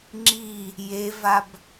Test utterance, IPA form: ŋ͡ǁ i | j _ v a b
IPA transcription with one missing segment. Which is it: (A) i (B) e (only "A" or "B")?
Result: B